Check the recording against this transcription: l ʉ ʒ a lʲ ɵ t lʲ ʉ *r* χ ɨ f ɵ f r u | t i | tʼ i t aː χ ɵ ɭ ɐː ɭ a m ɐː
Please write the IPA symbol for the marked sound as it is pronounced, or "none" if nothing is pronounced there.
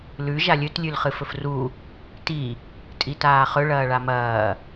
l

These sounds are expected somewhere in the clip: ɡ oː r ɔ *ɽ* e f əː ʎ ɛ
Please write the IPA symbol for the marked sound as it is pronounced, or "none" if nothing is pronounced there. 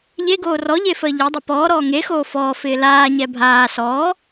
ʎ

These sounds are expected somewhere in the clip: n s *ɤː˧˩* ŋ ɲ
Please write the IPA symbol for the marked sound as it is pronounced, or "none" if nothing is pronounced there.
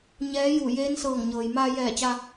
ɤː˧˩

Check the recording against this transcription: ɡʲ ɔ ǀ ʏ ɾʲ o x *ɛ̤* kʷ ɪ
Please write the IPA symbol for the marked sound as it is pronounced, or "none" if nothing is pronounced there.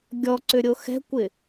ɛ̤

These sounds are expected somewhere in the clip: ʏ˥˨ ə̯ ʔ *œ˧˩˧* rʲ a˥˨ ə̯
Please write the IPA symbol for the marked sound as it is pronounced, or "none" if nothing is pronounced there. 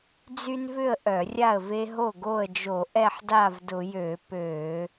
œ˧˩˧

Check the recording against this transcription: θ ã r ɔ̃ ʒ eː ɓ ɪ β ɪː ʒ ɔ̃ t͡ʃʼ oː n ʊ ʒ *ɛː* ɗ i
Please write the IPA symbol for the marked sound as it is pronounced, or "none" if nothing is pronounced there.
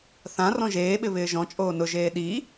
eː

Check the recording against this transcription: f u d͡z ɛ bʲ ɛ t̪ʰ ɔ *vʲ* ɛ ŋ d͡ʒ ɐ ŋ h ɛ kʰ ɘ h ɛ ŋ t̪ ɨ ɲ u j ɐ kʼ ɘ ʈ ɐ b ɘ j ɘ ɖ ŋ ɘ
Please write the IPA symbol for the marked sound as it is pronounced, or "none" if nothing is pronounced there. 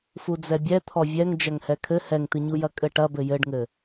vʲ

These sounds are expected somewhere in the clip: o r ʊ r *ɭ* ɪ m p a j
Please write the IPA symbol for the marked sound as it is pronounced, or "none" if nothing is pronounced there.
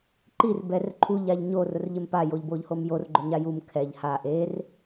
ʎ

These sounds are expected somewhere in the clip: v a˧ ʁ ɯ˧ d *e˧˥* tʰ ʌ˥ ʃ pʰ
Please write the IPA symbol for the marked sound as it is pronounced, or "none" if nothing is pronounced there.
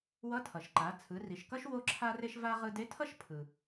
e˧˥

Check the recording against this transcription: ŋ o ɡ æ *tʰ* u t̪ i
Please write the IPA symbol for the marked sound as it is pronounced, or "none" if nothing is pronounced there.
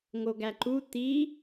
ǃ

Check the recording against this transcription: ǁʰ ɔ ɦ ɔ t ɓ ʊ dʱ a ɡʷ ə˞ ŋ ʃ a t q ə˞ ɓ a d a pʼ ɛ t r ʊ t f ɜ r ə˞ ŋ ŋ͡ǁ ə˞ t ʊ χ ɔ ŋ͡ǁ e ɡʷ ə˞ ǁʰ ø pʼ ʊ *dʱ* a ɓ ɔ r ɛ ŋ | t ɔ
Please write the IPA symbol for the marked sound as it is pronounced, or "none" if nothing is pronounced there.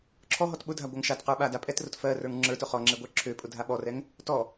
dʱ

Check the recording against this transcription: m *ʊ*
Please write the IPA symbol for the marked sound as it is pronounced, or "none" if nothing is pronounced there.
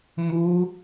u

